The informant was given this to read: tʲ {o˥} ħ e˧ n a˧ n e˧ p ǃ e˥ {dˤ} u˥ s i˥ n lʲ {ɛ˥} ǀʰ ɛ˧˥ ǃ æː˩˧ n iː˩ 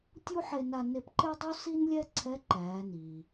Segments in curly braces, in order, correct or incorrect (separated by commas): incorrect, correct, correct